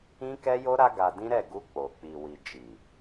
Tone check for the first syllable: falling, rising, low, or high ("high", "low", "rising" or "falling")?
high